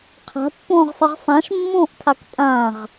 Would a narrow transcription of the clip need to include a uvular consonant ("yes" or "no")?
yes